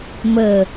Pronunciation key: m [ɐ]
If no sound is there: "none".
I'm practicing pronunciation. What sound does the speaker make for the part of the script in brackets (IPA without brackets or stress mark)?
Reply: ə